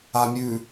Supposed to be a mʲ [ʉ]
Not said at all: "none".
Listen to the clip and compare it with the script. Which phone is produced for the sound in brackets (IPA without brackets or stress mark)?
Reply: ʉ